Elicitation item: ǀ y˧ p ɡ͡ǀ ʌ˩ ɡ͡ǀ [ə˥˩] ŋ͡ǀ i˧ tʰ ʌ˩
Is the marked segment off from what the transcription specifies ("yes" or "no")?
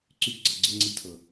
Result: no